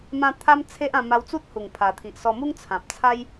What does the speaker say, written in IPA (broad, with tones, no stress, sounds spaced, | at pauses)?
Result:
m ã˧ t̪ʰ a˦ m t͡sʰ e˦ ʔ ã˧ m a˧ w t͡s u˦ t̚ h u˨˩ ŋ pʰ a˨˩ t̪ʰ i˨ ʔ s ɔ˧ m u˦ ŋ t͡sʰ ã˨ p̚ t͡sʰ a˦ j